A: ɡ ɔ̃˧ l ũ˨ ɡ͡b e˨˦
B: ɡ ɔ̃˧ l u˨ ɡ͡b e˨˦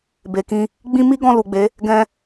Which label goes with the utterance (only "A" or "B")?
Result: B